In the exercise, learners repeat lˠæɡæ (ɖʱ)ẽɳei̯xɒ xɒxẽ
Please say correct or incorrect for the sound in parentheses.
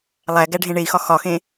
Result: correct